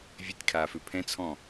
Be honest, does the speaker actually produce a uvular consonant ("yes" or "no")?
no